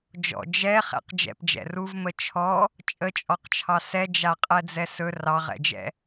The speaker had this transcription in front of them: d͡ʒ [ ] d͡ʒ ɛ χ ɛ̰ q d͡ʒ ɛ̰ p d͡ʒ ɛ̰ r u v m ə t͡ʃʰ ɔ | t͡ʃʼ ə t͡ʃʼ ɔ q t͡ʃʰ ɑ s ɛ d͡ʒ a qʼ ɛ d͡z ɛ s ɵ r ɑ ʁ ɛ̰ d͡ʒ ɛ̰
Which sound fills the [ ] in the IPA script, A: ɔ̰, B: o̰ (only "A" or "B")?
A